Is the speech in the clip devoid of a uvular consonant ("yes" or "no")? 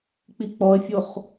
no